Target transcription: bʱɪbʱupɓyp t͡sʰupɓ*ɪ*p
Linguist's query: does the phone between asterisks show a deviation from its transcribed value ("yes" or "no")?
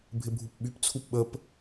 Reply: yes